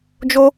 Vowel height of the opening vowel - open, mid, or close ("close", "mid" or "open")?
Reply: mid